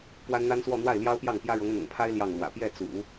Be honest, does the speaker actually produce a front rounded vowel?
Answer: no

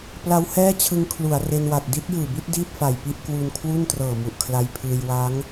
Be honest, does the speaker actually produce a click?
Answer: no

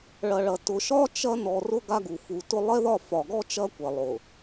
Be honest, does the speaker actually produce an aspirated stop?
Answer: no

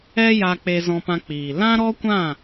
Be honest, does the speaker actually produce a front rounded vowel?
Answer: no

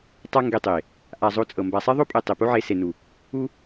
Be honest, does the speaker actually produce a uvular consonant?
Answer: no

